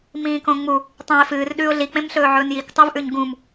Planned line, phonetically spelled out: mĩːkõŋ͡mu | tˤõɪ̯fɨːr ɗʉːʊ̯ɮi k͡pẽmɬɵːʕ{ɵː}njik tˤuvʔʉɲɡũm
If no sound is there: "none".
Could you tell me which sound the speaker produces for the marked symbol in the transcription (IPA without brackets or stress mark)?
ɵː